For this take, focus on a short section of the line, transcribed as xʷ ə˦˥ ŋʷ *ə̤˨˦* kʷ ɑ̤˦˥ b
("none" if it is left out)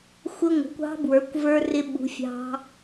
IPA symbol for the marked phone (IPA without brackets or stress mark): ə̤˨˦